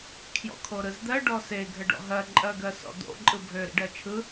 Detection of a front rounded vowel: present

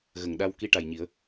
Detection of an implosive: present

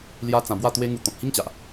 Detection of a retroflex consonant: absent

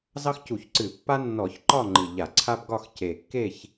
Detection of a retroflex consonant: absent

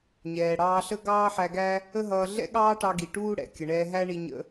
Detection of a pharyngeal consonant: present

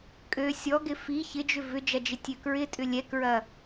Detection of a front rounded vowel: present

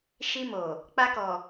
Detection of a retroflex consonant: absent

